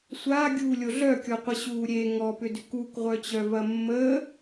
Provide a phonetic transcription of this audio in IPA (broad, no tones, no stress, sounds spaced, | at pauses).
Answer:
sʷ a ɡʲ uː lʲ o ɮ œ kʲ ɔ qʷ ə ɕ uː ɾʲ e ŋ ɔ p ʏ d ʏ k u k ʁʷ œ t͡ɕ œ v ɐ mː ə